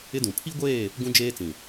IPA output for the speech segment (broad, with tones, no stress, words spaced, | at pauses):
ɪ˦dũ˨ pʰi˦ɡʷeː˦˨ | ɡũ˦d͡ʒeː˦t͡sĩ˨